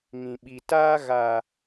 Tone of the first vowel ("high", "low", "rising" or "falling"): low